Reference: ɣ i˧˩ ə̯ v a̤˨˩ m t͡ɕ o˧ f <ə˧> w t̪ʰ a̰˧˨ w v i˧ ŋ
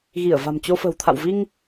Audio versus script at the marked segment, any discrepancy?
yes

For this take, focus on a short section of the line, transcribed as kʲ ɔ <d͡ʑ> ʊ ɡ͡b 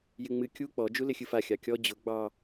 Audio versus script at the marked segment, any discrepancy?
no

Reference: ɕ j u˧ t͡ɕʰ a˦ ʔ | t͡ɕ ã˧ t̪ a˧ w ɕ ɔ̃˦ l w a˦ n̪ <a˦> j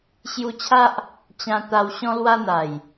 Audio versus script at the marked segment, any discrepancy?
yes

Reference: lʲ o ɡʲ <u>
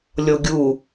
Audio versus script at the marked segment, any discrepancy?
no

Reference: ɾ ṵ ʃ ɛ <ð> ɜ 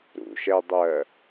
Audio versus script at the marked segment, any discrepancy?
yes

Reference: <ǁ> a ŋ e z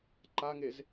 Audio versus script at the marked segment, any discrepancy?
yes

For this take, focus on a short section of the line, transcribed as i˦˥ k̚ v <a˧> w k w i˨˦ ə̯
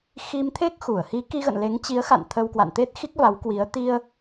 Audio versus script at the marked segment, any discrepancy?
yes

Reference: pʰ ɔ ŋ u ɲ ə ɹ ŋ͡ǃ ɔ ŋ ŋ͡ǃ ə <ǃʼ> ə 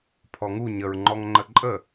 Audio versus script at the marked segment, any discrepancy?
no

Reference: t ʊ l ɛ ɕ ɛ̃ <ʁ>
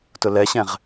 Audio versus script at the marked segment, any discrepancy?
no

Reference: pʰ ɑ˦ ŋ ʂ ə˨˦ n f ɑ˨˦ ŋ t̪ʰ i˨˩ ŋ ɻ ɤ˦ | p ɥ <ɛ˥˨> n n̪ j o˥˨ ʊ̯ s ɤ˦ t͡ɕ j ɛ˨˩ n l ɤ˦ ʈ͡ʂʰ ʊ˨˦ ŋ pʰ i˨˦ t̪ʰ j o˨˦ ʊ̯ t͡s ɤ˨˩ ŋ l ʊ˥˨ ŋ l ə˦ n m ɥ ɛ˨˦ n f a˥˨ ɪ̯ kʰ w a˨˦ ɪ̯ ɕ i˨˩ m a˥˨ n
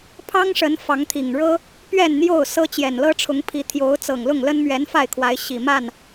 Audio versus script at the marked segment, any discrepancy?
no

